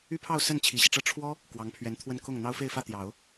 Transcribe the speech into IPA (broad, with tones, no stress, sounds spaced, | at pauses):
y˥ pʰ ɑ˥˧ ʊ̯ s ə˥˩ n t͡ɕʰ i˨˩ ɕ i˦ ʈ͡ʂ ɤ˥ ʈ͡ʂʰ w ɔ˥ | k w ɑ˧˥ ŋ pʰ ɥ ɛ˧˥ n t̪ʰ w ə˥˧ n k ʊ˥˩ ŋ n̪ ɑ˥ ʊ̯ f e˥˧ ɪ̯ f ä˥˩ t̪ j ɑ˨˩˦ ʊ̯